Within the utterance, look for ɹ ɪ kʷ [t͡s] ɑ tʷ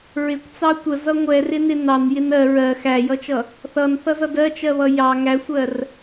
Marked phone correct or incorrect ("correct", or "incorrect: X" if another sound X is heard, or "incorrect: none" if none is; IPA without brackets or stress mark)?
correct